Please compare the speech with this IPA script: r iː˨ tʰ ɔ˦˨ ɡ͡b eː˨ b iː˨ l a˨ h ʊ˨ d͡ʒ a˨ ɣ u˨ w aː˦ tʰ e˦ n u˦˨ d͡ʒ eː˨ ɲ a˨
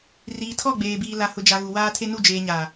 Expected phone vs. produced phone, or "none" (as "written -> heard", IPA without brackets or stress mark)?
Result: none